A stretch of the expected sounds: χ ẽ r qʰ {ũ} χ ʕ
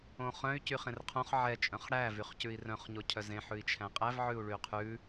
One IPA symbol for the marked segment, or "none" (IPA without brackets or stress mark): õ